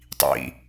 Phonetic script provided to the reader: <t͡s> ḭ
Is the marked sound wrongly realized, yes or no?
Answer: yes